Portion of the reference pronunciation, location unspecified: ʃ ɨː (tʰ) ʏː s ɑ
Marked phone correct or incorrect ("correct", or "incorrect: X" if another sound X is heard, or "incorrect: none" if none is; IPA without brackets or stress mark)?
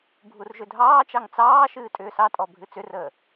incorrect: tʼ